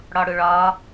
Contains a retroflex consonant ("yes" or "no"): yes